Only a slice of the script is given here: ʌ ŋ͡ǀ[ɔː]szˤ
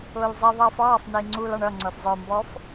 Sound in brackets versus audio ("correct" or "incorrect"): incorrect